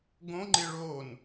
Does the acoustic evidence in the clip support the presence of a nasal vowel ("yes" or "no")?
yes